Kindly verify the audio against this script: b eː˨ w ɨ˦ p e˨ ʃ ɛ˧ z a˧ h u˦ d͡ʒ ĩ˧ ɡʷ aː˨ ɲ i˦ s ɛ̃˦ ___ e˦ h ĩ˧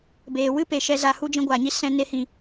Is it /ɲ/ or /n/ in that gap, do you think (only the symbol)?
n